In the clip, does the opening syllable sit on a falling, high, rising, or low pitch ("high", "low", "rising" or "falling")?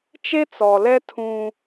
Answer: high